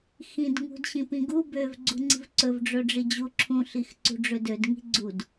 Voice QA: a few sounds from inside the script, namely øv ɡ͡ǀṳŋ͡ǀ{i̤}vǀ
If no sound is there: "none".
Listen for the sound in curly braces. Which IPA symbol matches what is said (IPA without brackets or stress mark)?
i̤